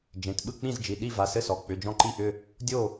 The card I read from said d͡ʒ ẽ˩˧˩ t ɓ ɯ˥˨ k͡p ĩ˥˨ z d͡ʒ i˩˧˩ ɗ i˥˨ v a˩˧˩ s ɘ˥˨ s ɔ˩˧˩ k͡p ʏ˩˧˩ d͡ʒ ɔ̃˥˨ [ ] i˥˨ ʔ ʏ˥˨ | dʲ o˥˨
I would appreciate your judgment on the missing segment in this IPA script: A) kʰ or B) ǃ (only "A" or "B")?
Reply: B